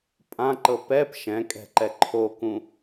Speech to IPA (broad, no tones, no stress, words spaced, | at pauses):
pʼãǃɤ pɛp ʃɛ̃kʼɛ̤ǃɛ ǃʰokũ